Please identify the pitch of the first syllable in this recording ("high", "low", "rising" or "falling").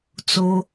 low